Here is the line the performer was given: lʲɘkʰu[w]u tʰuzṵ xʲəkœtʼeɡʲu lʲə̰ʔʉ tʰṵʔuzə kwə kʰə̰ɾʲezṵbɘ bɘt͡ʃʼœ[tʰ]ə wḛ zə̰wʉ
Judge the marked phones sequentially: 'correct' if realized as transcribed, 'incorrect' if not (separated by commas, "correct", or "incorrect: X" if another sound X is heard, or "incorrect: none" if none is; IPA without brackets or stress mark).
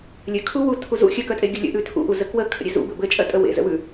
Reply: correct, incorrect: tʼ